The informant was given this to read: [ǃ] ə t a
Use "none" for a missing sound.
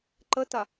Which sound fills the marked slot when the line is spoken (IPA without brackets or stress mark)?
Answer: ǃ